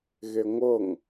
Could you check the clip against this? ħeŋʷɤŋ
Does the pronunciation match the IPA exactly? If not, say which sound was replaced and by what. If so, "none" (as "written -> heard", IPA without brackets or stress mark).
ħ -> ɣ